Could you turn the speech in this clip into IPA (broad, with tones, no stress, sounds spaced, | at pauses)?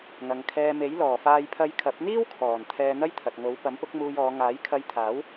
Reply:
ŋ ɐ˨ ŋ kʰ ɛː˧ m e˨˥ j l ɔː˨˩ f aː˧ j pʰ ɐ˧ j kʰ ɐ˨˥ p̚ n̪ iː˥ w kʰ ɔː˨˩ n t̪ʰ ɛː˧ n̪ ɐ˥ j t̪ʰ ɐ˨ t̚ ŋ o˨˥ w p ɐ˨˥ m p ʊ˨˥ k̚ m uː˧ j ɔː˨˧ ŋ aː˨˥ j kʰ ɐ˧ j t̪ʰ aː˨˥ w